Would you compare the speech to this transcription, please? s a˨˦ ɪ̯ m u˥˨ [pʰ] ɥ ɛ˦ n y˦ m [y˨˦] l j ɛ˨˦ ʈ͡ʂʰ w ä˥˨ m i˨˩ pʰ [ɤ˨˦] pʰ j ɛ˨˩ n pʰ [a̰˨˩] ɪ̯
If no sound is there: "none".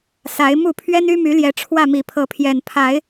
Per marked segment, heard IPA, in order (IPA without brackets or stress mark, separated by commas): pʰ, y˨˦, ɤ˨˦, a˨˦